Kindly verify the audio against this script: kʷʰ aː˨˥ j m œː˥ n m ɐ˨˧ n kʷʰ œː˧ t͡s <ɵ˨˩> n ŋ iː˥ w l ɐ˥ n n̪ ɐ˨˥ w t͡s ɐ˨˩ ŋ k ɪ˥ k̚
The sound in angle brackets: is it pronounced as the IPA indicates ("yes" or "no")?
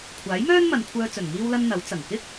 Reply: yes